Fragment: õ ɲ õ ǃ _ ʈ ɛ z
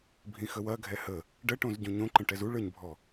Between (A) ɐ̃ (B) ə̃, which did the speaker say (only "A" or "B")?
B